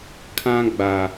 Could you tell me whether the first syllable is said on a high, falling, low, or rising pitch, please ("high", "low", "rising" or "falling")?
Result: high